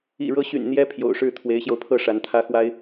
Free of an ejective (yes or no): yes